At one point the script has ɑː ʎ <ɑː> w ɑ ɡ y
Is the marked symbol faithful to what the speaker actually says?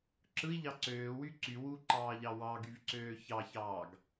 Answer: no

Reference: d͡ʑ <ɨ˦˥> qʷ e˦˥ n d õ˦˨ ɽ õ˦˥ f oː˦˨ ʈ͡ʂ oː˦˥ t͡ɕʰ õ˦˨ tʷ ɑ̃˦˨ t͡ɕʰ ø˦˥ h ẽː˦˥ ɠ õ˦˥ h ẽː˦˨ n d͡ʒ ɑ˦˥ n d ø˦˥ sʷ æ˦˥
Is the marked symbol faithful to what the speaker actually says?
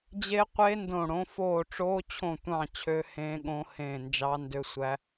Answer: no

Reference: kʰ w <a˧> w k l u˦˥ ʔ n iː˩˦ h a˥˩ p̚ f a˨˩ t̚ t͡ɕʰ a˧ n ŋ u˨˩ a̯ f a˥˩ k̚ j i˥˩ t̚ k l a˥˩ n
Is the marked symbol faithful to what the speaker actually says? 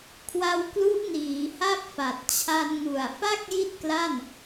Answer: yes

